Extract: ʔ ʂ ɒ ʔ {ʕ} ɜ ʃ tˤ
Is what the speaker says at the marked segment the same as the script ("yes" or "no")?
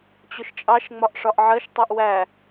yes